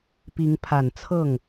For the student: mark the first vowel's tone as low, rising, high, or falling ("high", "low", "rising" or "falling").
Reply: rising